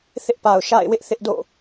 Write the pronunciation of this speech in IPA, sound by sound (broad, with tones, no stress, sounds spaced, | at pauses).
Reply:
θ ɪ˦ ʔ p a˨ ʊ̯ ʃ a̰˦˨ ɪ̯ w ɪ˦ ʔ θ ɪ˦ ʔ d o̰˦˨